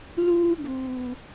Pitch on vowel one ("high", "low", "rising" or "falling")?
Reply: high